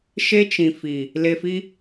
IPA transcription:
ʃ e˦ t͡ʃ ĩ˨ f i˨ | l e˨ f i˦

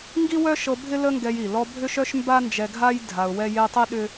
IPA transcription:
ŋ ɡ i˦ w œ˦ ʃ ɤ˧ bʱ ɪ˦ l ə˦ ŋ ɡ ɛ˧ j i˨ l ɔ˧ bʱ ʏ˦ ʃ œ˦ ʃ m b a˦ n d͡ʒ ɛ˧ ɡʱ a˦ j dʱ a˧ ʊ̯ w ɛ˦ j e˦ tˤ i˦ ɗ ʏ˦

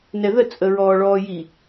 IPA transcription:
n ɛ ð ə t͡sʼ ə ɹ ɔː ɭ ɔː j i

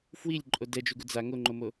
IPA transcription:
f w i lʲ ǃʼ o d ɛ d͡ʒ u ɡ u d͡z a ŋ o ŋ͡ǃ o m o

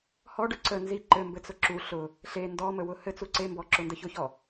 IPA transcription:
h ɔ ɖ ʊ ǀ ə n z i ǃ ɘ m b ɘ t͡s ʊ ǁ u ɬ ʊ | ɬ e n d ɔ m ə w ʊ h ɘ t͡s u ǀ e m b ɔ ǁ ʊ n d ə ç ʊ ç ɔ

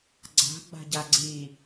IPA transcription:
ɡ͡ǀ a̤ ɡ͡b a̤ ɟ a ɡ͡ǀ i

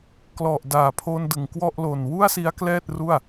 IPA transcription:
k l ɔ˨˩ ʔ d aː˨˩ pʰ o˧ n d ɯ˨˩ ŋ k w ɔ˥˩ ʔ l o˨˩ n w u˥˩ a̯ s i˦˥ a̯ k l ɛː˥˩ t̚ r u˥˩ a̯

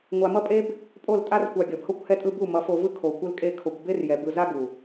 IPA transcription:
ŋʷ a˧ m ʌ˦ pʼ e˦ b | pʼ o˦˨ l tʼ a˦ r kʷ a˧ ɡʲ ʌ˨ b h o˦ kʷ h ɛ˧ tʼ ɯ˧ b u˦˨ m ʌ˨˦ f o˧ v ɯ˦ kʰ o˧ kʷ ɯ˦ l kʼ e˦ kʰ o˧ kʷ b e˦ r j ɛ˨ b ɯ˧ z a˦ ɡ u˨

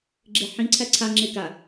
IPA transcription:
ɡ͡ǁ e ħ ĩ ǀʰ æ ǀʰ a ŋ͡ǁ e k a

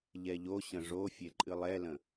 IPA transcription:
ʎ ɛ ʎ o ɕ ə̃ ʐ o fʲ e ǃʼ ɨ lˠ ɛ l ə̃

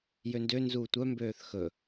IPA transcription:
j ø n d ø n z uː tʷ œ m b øː θ x ɵ

